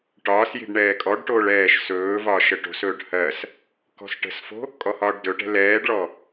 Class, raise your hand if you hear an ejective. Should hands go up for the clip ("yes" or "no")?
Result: yes